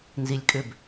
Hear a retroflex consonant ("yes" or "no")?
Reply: no